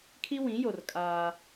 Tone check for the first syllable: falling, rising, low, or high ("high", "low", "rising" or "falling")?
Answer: high